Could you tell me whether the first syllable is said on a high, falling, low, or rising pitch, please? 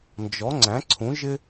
rising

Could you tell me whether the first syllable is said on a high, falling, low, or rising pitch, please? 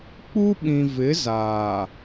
high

